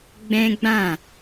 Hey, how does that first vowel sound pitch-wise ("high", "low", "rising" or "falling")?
high